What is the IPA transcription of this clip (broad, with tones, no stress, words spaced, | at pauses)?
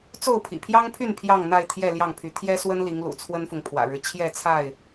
t͡so˥˨ʊ̯pʰḭ˨˩pʰjɑ˦ŋpʰy˥˨n pʰjɑ˥˨ŋn̪a˥˨ɪ̯ t̪ʰjɛ˥˨ljɑ˥˨ŋpʰy˨˦ t̪ʰjɛ˦swə˦nli˨˦ŋlṵ˨˩ t͡sʰwə˦nfʊ˨ŋpʰwä̰˨˩ɻɻ̩˦ t͡ɕʰjɛ˥˨t͡sʰa˥˨ɪ̯